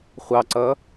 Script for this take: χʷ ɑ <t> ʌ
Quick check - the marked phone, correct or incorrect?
incorrect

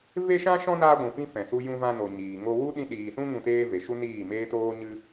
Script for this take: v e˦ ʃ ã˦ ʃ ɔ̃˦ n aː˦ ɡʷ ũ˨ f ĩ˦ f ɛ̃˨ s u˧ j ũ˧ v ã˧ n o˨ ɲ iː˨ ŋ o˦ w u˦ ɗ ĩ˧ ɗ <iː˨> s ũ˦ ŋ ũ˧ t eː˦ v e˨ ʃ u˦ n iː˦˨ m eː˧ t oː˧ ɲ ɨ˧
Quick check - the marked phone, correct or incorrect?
correct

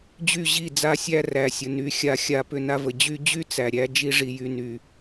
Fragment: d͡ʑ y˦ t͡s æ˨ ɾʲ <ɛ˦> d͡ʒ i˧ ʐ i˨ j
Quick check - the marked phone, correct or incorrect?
incorrect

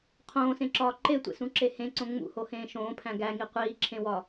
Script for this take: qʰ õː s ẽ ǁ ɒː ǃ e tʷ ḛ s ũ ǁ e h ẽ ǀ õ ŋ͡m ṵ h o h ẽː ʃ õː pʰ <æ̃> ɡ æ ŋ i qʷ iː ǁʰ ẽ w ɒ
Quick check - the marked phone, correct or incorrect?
correct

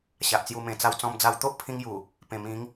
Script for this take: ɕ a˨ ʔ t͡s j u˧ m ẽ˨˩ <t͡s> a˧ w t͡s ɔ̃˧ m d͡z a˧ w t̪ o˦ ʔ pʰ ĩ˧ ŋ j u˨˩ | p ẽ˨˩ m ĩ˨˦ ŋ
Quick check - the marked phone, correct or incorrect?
correct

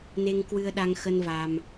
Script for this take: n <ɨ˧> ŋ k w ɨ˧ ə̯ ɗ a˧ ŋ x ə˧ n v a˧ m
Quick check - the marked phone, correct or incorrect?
incorrect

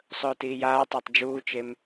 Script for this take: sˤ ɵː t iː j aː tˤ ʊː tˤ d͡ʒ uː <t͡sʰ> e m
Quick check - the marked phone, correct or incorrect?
incorrect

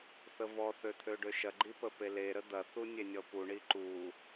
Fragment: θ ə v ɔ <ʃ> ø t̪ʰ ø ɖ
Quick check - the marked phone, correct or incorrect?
incorrect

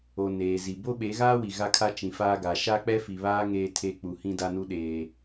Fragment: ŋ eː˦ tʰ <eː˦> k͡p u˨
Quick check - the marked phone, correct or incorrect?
incorrect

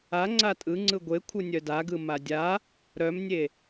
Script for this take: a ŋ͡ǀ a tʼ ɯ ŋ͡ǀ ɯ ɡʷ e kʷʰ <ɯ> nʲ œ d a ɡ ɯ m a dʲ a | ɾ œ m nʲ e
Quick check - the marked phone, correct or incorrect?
correct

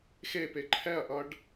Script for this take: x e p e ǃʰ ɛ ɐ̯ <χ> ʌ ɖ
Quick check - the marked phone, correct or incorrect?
incorrect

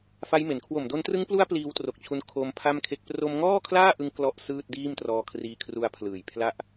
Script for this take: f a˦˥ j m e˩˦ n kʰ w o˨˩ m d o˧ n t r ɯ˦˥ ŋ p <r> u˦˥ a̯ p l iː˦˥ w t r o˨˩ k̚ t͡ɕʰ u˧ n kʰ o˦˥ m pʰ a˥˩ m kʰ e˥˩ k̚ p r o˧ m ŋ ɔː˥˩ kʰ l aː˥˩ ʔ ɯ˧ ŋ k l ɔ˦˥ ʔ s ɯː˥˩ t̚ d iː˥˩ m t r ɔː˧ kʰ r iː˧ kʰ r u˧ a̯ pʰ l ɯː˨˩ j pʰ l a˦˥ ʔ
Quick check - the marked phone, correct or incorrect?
incorrect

